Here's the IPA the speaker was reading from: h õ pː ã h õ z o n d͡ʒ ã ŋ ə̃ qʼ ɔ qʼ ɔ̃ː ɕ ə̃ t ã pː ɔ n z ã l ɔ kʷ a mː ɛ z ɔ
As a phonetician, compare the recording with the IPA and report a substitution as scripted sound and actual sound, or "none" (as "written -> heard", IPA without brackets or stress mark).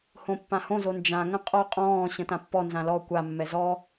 none